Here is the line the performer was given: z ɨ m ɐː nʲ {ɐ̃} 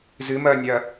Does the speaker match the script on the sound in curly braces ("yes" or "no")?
no